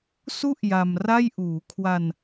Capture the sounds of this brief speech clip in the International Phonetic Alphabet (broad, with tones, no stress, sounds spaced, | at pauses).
s u˦˥ ʔ j a˧ m r a˥˩ j ʔ uː˩˦ kʰ w a˧ n